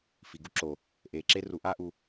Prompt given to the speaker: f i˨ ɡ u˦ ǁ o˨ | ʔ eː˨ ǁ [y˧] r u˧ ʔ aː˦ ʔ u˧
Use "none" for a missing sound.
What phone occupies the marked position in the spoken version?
e˧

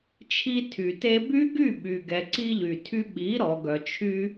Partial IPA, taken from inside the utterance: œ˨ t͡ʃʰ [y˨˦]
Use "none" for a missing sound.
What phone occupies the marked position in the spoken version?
y˦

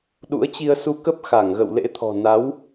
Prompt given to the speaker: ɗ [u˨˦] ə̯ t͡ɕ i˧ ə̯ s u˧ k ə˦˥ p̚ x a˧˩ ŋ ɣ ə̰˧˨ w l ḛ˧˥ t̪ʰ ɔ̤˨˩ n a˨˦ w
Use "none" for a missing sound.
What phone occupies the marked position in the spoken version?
ṵ˧˥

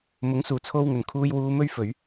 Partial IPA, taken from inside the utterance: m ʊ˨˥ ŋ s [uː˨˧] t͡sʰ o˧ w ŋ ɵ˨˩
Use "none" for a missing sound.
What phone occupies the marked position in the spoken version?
uː˨˩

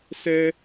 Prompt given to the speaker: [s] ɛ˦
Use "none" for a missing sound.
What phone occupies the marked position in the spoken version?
s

